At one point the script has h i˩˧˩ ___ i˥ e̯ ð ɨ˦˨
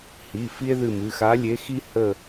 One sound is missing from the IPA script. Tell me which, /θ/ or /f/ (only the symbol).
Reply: f